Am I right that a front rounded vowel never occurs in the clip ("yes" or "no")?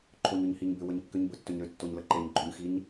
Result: no